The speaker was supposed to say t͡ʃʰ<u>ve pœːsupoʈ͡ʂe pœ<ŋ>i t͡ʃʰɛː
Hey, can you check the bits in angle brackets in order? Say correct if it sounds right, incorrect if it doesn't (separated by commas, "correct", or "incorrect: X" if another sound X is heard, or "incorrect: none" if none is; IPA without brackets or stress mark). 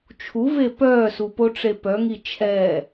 correct, correct